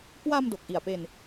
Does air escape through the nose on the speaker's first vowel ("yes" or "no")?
no